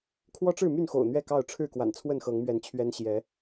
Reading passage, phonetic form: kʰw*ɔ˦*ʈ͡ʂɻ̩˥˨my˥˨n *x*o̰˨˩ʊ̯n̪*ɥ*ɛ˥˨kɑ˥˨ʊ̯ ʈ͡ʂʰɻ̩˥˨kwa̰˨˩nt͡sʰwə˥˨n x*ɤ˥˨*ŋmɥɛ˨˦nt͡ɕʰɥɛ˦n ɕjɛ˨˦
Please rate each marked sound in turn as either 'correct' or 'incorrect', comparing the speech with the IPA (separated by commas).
correct, correct, correct, incorrect